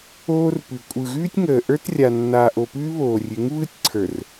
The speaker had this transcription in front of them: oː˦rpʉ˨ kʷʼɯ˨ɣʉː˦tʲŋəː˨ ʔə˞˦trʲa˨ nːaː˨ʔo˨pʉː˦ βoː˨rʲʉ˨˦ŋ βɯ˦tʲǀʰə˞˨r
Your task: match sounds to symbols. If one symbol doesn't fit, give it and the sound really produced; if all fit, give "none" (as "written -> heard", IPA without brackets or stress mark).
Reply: none